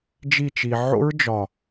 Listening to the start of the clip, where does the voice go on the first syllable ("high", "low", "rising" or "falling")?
falling